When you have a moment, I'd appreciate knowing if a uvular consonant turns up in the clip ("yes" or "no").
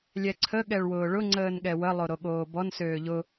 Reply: no